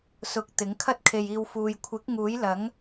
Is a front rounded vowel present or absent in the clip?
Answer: absent